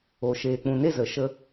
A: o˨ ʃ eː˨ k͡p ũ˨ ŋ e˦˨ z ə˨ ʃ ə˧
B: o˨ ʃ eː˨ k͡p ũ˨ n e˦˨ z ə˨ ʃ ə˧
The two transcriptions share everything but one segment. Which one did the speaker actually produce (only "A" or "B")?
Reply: B